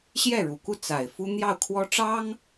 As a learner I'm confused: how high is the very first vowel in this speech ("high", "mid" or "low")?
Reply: mid